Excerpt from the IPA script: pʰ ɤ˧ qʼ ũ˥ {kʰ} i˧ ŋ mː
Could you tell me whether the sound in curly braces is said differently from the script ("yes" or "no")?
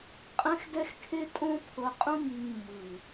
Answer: yes